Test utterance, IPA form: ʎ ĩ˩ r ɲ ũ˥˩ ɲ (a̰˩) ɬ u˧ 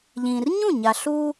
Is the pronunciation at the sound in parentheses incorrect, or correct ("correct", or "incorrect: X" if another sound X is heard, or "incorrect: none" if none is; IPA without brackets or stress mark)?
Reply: incorrect: a˩